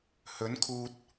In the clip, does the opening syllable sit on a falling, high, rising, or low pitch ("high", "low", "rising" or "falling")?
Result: rising